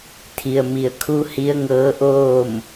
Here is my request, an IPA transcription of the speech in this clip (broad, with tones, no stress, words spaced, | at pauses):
t̪ʰi˩ə̯mi˩ə̯kʰu˧˥ hi˧˥ə̯ŋɤː˧˥ʔoː˥˨m